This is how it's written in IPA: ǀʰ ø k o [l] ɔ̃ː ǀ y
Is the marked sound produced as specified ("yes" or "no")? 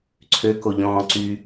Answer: no